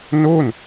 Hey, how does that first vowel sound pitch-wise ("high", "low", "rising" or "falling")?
falling